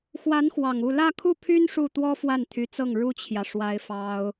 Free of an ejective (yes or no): yes